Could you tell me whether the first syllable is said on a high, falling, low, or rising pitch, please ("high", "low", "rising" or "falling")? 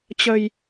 low